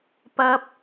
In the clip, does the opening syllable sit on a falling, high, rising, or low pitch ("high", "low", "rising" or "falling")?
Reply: high